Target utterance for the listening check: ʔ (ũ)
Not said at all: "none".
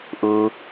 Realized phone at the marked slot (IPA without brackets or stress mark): u